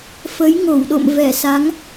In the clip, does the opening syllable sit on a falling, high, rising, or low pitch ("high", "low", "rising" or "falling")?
rising